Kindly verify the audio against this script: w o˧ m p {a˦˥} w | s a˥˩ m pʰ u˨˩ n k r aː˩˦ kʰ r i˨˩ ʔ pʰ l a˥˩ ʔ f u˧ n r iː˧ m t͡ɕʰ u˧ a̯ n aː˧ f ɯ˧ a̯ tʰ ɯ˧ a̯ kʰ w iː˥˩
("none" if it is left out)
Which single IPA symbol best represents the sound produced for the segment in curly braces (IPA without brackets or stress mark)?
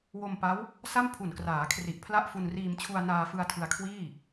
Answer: a˦˥